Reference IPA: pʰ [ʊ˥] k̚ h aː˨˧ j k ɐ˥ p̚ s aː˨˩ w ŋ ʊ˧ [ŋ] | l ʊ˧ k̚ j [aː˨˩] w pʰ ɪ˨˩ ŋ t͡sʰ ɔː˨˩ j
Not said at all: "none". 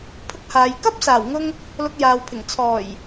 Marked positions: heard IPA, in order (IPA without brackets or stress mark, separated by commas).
ʊ˥, ŋ, aː˨